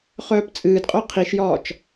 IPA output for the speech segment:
χ œː p t͡sʼ ɨː d qʼ œ qʰ i ʃ j ɒː t͡ʃ

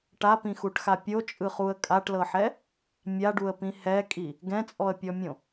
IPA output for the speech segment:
ʈ a p ĩ x u ʈ x a pʲ o t͡ʃʼ ɯ χ u ə̯ kʼ a ʈ l ɤ ħ ɛ | mʲ a ɖ u ə̯ p ĩ h ɛ kʼ i | ɡ ɛ̃ t͡sʼ ɔ ə̯ pʲ ɔ mʲ õ

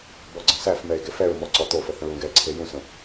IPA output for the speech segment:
b ɔ ɡ͡ǀ ə̃ s æ f m ɛ e̯ ɡ e f ɛ ɹ m ɔ ǀ ɔ t̪ o f ə θ ə̃ ɹ ũ ɡ ɛ ǀʰ e j ũ s ə̃

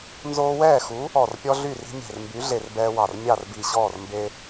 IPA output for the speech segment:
n z oː˦ w ɛː˥˨ x u˨˥ | ɔ˧˩ r pʲ ɔ˦ ɮ y˥˨ r i̤˦ mʲ ɛ̤˧˩ r m b y˨˥ ɮ e˧˩ r b ɛː˦ w ɑ˧˩ r mʲ ɑ˥˨ r b i˧˩ ɕ ɔː˥˨ r m b e˦

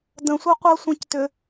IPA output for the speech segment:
d ə̃ sʷ ɜ qʷ ɜ sʷ ẽ c t ʏ

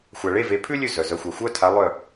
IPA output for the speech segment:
xʷ a˨ ɭ e˧˥˧ v e˨˦ pʰ ʉ˥ lʲ ʉ˥˨ z œ˨ z œ˨˦ xʷ ɑ˨˦ xʷ œ˧˥˧ tʰ a˨˦ lˠ œ˥˨

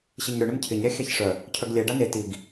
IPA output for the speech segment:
ɕ ɪ ɲ ɾ ʏ ɳ ɪ m cʰ ɪ ɲ ɾʲ a xʲ a ç ʂ œ | cʰ œ ɡ lʲ ɛ ɖ a n e t i ɡ

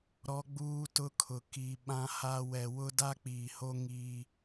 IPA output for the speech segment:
ɾ ɔ˦ ɡ͡b uː˦ t ʊ˦ kʰ ʊ˨ k i˨ ɓ ã˦ h a˦ w ɛ˨ w ʊ˦ d a˦ k͡p iː˨ h o˦ ŋ iː˦

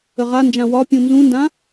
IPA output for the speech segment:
ə ʁ a n d͡ʒ ã w ɒ pʲ ũ n z ũ n d ã

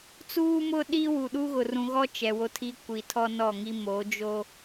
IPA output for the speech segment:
t͡s uː˦ m ʊ˦ ɗ i˦ w u˨ ɗ u˦ ɣ ʊ˨ r ũ˨ ɣ ɔ˦ t͡ʃ ɛ˨ w o˦ tʰ i˦ kʷ i˨ tʰ ɔ˦ n ɔ˦˨ ŋ i˦ m o˨˦ d͡ʒ o˦

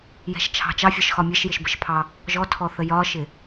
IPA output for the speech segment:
j ɛ̤ ʃ t͡ʃʰ ɑ̤ t͡ʃ ɑ fʲ ɒ ʃ x ɒ mʲ ɛ ʃ j ɪ ʃ b ə ʃ pʰ ɑ | ʒ ɔ tʰ ɔ θ ə j ɒ ʃ ɪ

